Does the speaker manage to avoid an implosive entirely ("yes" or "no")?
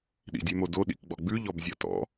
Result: no